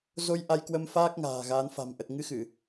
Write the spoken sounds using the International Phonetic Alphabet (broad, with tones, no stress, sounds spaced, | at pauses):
z o˧ j ʔ a˧ j k w ə˧ m f aː˦˥ k̚ ŋ a̤ː˨˩ ɣ aː˨˦ n f a̤˨˩ m ʔ ə˨˩ t̚ ŋ ɨ˧ x ɨ˧˩˨